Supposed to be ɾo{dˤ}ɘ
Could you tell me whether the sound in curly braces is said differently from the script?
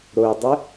no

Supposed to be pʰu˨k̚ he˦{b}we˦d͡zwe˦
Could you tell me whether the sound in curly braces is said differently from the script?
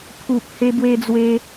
no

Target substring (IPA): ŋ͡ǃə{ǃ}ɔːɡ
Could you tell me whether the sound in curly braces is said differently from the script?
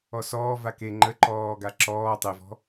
no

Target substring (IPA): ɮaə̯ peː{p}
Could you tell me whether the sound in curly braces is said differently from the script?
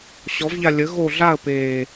yes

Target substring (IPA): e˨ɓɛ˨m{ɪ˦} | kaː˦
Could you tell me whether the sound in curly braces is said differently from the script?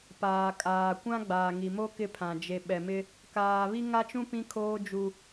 no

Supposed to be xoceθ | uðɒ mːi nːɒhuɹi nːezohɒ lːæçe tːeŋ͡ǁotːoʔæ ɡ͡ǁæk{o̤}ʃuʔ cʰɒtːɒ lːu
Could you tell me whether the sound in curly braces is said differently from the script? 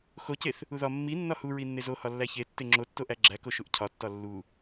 yes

